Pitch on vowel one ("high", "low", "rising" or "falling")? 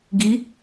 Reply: rising